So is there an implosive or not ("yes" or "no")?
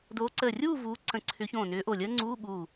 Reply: yes